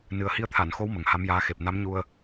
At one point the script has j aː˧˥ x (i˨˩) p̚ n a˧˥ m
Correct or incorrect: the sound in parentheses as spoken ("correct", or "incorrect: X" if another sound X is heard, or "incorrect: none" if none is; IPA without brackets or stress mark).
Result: incorrect: e˨˩